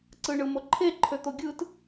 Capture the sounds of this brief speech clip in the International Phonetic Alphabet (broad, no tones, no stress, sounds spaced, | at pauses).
ǀ ɯ ɳ ɯ m o ǃʰ e ǃʰ ø t̪ o ɡʲ ɯ t